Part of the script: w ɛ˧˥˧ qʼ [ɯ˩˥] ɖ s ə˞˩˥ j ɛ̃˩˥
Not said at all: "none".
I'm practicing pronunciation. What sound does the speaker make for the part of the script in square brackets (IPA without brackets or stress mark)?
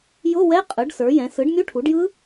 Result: ɯ˩˥